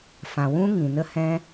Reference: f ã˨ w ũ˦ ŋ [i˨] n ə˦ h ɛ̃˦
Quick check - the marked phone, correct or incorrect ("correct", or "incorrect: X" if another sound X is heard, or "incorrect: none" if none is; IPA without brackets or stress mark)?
incorrect: ĩ˨